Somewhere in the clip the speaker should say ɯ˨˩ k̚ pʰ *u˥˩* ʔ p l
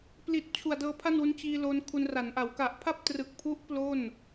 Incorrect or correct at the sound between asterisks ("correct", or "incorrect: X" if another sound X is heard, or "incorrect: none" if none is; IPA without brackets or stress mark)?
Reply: incorrect: u˦˥